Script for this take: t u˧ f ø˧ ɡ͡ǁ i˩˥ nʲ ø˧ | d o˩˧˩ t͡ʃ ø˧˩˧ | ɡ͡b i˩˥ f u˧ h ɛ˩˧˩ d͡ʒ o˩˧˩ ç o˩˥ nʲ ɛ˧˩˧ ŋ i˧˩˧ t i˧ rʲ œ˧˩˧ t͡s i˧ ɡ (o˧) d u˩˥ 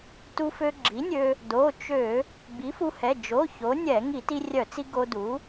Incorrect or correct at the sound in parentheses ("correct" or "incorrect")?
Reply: correct